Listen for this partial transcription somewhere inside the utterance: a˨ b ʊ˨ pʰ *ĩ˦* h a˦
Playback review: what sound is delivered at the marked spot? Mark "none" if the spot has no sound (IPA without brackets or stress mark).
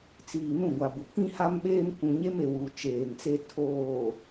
ĩ˦